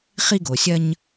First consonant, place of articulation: uvular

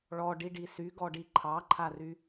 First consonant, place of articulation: retroflex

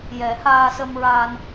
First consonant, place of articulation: palatal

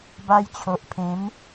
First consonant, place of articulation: labial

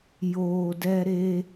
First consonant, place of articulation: palatal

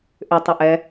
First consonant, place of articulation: glottal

